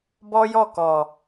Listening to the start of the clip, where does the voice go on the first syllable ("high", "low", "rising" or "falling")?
high